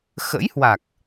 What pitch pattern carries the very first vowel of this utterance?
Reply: rising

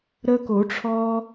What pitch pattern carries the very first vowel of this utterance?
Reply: high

